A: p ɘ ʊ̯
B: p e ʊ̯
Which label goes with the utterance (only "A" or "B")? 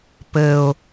A